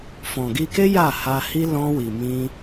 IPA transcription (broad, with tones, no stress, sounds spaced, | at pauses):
f ɔ̃˨ ɡ i˧ k e˦ j a˦˨ h a˧ h i˦ l ɔ̃˧ w i˨ m ĩ˧